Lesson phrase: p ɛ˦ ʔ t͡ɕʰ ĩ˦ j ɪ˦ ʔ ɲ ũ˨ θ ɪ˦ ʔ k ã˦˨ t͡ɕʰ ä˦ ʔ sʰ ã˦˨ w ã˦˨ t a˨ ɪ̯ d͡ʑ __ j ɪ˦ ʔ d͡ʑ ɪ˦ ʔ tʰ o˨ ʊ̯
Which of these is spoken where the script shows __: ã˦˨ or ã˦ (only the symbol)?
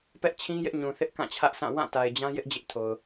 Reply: ã˦